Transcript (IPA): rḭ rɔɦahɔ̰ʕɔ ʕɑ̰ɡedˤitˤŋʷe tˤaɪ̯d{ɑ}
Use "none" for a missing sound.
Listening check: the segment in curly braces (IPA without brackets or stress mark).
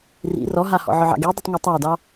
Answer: ɑ